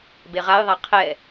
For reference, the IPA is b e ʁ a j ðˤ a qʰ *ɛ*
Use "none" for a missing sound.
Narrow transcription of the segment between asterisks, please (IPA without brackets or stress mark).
ɛ